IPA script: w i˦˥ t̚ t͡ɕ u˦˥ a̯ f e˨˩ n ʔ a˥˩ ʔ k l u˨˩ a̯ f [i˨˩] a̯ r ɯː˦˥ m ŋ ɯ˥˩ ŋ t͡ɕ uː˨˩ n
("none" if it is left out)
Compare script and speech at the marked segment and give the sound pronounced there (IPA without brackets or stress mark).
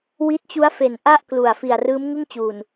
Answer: i˨˩